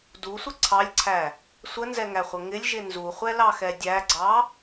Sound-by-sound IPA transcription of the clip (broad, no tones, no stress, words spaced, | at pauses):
dusʷə ǀʰɑlʲǀʰæ | sʷənzɛŋæχʷə ŋɪlʲʒɪ nzuχʷɛlɑxɛ dʲæɡ͡ǀɑ